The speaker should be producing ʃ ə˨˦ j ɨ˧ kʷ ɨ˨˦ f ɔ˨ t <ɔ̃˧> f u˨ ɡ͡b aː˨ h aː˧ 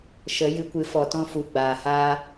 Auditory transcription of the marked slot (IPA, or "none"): ɔ̃˧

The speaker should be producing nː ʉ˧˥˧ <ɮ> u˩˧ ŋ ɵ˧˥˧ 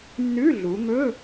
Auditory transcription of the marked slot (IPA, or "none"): ɮ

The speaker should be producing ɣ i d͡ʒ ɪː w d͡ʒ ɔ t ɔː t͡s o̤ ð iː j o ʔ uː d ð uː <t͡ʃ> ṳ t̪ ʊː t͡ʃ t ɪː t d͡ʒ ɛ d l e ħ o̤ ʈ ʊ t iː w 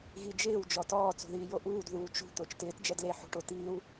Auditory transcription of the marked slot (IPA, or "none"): t͡ʃ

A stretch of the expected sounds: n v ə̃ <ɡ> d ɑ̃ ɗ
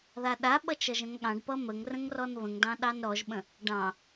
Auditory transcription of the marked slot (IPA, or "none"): ŋ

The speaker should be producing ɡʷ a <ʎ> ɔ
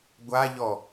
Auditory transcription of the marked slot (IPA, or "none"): ʎ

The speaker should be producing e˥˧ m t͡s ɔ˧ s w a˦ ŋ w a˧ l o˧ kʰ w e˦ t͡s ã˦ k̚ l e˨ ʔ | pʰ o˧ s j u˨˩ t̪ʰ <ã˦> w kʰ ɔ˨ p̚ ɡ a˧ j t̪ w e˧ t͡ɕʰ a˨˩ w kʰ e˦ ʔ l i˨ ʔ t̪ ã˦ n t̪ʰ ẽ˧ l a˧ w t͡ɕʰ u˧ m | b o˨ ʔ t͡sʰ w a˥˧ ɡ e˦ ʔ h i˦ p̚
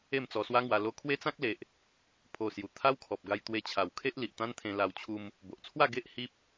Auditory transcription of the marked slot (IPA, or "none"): a˦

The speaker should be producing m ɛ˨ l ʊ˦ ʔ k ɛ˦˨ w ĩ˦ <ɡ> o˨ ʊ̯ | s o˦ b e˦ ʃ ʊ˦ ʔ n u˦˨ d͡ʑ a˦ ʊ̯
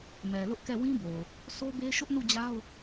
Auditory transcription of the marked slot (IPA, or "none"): b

